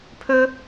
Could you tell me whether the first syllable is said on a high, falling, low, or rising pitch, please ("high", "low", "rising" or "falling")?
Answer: high